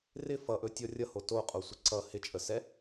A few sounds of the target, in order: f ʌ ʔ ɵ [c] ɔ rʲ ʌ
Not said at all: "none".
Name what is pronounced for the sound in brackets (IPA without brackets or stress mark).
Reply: tʲ